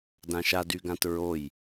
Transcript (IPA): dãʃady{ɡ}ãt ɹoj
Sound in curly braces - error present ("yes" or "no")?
no